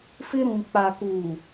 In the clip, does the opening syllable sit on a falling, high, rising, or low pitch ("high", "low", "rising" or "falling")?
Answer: high